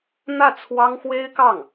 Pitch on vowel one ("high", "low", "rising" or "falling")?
falling